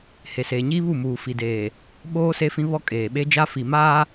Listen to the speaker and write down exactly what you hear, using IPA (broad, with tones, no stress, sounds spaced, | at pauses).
h e˨ s eː˨ ɲ iː˦ β u˦˨ m uː˨ f i˨ d eː˨ | ɓ oː˦ s e˦ f ĩ˦ β ɔ˦ kʼ eː˨ ɓ e˦ d͡ʒ a˦ f i˨ m aː˦